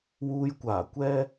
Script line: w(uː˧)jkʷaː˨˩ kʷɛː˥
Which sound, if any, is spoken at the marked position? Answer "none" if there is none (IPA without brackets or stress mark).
uː˧